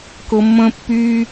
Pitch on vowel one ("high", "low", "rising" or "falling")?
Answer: high